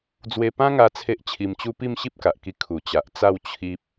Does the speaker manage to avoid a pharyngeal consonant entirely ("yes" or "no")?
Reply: yes